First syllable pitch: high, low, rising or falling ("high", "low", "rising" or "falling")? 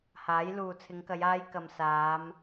rising